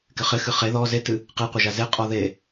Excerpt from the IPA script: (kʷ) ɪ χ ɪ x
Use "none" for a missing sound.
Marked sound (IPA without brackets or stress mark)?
k